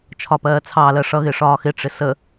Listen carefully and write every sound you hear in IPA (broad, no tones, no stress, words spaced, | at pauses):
t͡ʃʰɒpɜːt͡sʰɑlɜ ʂʌɣɪ ʂɒːxɪʈ͡ʂɪ sə